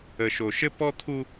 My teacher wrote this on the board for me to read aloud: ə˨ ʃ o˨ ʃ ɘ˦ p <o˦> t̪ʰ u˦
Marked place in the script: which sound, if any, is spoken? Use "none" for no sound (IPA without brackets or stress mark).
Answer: ɔ˦